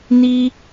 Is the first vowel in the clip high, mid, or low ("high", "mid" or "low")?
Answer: high